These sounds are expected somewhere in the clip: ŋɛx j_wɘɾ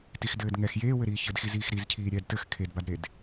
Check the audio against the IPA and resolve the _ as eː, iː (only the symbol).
eː